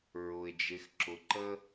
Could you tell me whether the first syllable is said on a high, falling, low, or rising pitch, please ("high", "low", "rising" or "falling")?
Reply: low